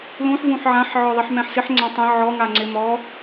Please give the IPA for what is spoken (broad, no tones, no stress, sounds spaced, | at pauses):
l ũ ħ v ũ ħ ʕ ã ħ ʕ ɔ ðˤ i ħ m ɛ̃ ħ s ɪ ħ ŋ͡ǀ ã tˤ ẽ ʕ ɔ ŋ a ŋ͡ǀ ɪ m ɔ